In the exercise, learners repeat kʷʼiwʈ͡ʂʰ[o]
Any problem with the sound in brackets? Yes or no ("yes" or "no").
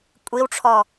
yes